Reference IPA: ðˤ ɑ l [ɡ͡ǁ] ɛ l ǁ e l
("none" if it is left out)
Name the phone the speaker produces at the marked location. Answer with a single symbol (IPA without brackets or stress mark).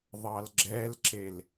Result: ɡ͡ǁ